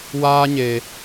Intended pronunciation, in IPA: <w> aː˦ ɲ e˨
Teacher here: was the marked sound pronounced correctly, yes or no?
yes